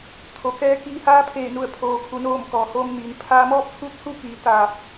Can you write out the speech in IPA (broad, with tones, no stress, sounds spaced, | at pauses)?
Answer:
t̪ʰ o˩ k ɛː˧ k iː˧ h aː˧˥ pʰ eː˧˩ n u˧˩ ə̯ pʰ oː˩ kʰ u˩ n oː˧˩ m k ɔː˩ h oː˧ m n iː˩˧ n pʰ aː˧ m ɔː˥˨ p̚ t̪ʰ u˧˥ t̚ h u˧ k iː˩˧ t̪ aː˧˩ p̚